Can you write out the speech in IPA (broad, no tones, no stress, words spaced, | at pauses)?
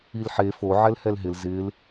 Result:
ilħe fo ʕɛlhɛlɦɪl zɪːl